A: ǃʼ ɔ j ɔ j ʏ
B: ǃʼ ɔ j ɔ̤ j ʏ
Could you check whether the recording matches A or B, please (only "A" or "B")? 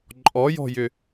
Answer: B